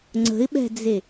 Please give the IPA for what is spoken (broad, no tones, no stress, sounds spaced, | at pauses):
ŋ͡ǀ ə̤ ɪ̯ ɓ ɛ̤ d͡z e